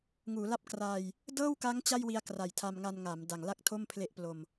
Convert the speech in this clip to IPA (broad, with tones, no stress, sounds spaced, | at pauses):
ŋ uː˩˦ l a˦˥ p̚ k r aː˧ j | d ɤː˥˩ w k a˦˥ ŋ t͡ɕ a˥˩ j w i˧ a̯ k r a˨˩ j tʰ a˧ m ŋ a˧ n ŋ a˩˦ m d a˨˩ ŋ l a˥˩ k̚ tʰ o˥˩ m pʰ l e˦˥ ʔ p l o˧ m